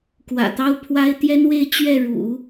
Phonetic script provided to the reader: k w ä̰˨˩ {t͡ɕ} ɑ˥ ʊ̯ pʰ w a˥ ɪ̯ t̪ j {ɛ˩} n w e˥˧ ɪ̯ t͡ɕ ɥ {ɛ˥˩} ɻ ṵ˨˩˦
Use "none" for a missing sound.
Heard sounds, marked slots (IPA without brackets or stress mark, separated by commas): t̪, ɛ˥, ɛ˥˩